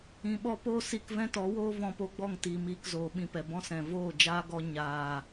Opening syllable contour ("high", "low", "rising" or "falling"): low